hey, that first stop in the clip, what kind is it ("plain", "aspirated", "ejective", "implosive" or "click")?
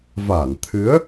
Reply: aspirated